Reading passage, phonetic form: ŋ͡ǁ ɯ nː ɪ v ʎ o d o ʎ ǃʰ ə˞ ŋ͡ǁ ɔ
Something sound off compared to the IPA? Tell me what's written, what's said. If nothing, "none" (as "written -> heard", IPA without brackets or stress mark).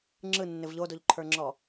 none